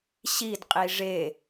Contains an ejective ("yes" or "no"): yes